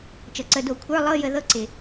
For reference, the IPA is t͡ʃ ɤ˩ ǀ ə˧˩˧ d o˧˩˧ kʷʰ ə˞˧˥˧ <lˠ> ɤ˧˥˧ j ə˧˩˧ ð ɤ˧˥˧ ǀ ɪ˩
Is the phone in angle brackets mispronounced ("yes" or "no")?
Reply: no